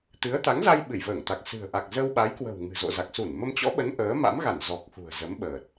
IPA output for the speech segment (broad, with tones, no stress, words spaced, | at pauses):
t̪ɨ˨˦ə̯t̪a˨˦ŋza˧j ɓɨ˧˩jvəː˧˩ŋt̪a˨˩k̚ sɨ̤˨˩ə̯ ʔa˨˩k̚zə˧wɓa˨˦jkwə̤˨˩w ŋɨ̤˨˩zo̰˧˨za˨˩k̚su˧˩n mə˧mt͡ɕɔ̰˧˥ɓə˨˦n ʔəː˨˦ma̰˧˥mɣa˧˩n zɔ˨˩k̚xṳ˨˩ə̯zə˨˦mɓəː˨˩t̚